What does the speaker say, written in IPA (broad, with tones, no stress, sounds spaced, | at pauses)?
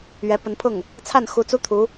ɥ ɛ˧˥ p ə˧˥ n pʰ ʊ˥˩ ŋ | t͡sʰ a˥˩ n x u˧˥ t͡s u˥ t̪ʰ u˧˥